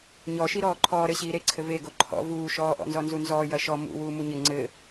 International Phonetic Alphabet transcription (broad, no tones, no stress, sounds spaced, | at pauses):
ɲ ɔ ʃ i ɾ ɔː ǃʰ ɔː ɾ ɘ ɕ iː ɾ e ǀʰ ɘ v e ɡ o ǃʰ ɔ̰ v uː ʃ ɔː ʔ ɔ̰ n z ɔ n z u n z ɔː j ɐ ʃ ɔ m ṵ w uː m u ɲ ɘ ŋ͡ǀ ɘ